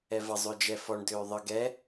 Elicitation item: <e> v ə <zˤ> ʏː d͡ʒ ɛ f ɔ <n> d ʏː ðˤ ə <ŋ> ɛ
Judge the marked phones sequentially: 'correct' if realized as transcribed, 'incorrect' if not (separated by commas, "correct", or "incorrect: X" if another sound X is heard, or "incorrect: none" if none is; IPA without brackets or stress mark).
incorrect: ɛ, correct, incorrect: ɳ, incorrect: ɡ